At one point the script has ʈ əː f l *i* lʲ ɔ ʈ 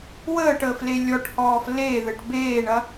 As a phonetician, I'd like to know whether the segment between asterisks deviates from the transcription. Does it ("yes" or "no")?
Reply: yes